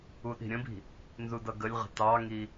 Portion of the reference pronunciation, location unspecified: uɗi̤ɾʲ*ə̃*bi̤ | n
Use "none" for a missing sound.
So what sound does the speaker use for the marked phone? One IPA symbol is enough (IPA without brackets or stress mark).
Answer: ə̃